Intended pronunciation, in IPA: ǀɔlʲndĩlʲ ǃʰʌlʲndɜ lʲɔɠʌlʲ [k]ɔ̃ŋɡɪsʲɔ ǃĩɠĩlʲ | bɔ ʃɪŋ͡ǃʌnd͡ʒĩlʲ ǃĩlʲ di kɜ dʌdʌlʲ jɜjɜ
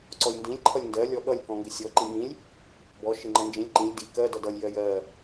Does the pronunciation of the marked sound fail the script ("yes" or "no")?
no